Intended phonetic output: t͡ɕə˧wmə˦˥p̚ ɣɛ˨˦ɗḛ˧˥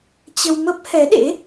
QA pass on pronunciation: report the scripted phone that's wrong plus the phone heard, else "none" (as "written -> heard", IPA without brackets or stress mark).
ɣ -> h